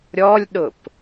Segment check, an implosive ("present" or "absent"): present